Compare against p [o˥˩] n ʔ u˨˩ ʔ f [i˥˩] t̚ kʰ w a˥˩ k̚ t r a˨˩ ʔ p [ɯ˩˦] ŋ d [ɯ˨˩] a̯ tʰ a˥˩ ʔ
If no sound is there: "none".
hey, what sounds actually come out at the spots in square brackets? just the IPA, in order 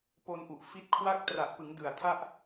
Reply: o˧, i˦˥, ɯ˩˦, ɯ˨˩

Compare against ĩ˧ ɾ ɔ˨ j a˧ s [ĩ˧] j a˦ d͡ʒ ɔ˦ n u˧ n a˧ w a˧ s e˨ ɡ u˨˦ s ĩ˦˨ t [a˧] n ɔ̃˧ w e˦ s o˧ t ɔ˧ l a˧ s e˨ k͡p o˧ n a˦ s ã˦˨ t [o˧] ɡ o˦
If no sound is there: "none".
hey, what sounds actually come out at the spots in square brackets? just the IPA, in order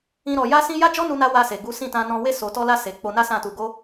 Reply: ĩ˧, ã˧, u˧

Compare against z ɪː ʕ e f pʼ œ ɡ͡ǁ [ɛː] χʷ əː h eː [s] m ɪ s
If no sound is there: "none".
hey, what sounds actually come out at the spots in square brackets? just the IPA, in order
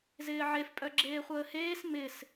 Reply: eː, s

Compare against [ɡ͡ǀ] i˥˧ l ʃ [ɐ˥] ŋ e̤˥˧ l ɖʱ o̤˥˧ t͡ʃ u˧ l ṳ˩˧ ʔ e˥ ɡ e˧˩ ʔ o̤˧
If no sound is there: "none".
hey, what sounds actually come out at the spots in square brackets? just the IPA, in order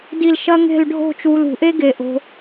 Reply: d, ɐ˥

